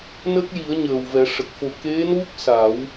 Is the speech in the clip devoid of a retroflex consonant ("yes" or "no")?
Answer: no